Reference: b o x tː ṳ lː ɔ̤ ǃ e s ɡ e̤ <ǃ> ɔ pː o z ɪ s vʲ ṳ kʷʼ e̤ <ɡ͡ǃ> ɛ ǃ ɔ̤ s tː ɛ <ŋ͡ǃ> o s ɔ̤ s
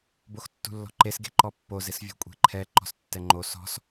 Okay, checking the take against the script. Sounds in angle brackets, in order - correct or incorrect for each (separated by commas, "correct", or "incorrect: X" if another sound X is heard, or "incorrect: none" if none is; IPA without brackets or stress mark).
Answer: correct, incorrect: ǃʰ, correct